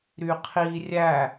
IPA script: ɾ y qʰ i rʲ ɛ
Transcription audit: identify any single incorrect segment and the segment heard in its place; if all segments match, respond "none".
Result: ɛ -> æ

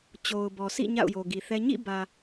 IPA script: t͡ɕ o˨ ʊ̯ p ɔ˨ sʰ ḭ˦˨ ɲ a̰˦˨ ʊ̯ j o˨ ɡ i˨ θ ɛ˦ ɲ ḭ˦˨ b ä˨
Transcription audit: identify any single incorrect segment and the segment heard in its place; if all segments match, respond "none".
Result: p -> b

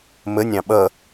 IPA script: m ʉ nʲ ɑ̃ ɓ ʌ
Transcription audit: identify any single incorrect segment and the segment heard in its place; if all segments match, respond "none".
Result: ʉ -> ə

